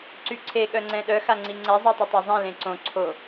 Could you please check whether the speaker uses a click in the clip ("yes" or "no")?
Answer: yes